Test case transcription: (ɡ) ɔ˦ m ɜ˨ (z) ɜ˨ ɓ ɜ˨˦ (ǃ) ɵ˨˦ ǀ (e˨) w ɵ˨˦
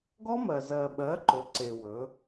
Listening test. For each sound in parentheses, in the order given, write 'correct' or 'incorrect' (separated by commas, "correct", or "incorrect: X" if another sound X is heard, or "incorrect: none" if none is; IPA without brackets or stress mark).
correct, correct, correct, correct